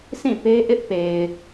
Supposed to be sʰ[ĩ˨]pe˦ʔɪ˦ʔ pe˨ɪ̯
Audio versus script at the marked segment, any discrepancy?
yes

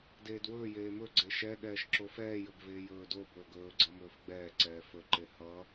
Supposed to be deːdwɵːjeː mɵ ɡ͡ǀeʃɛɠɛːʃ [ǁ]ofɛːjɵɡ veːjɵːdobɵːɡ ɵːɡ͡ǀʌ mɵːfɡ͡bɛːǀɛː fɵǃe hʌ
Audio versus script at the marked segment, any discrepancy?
no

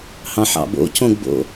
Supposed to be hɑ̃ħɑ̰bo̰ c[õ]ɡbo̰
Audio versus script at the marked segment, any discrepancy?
no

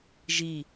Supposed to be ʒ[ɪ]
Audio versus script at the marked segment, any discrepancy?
yes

